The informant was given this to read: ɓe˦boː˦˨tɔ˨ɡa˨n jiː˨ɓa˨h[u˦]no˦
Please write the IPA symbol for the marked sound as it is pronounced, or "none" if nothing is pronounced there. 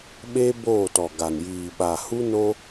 u˦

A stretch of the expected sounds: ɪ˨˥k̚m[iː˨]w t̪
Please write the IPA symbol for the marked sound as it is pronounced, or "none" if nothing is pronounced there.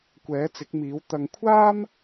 iː˨˥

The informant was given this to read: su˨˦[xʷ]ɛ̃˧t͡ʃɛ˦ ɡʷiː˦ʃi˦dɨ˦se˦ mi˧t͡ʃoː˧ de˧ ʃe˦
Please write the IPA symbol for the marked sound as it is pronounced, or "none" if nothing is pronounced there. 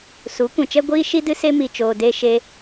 kʷ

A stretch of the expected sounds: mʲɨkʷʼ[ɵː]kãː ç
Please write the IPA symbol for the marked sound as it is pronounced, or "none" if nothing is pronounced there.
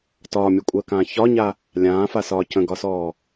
əː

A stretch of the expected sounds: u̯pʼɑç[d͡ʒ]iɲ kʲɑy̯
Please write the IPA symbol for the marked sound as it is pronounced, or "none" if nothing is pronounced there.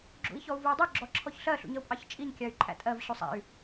t͡ʃʼ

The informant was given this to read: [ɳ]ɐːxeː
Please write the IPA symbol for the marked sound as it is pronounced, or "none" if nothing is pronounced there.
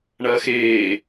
ɳ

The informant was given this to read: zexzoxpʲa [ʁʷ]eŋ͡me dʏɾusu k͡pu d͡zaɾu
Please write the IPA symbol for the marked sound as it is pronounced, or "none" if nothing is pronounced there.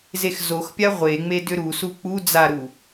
ʁʷ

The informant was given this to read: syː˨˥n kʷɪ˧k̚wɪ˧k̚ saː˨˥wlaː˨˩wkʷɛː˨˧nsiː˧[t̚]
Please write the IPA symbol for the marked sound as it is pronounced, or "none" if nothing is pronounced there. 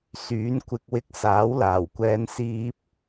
p̚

